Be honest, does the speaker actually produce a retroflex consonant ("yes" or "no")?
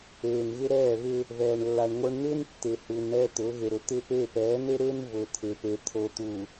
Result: yes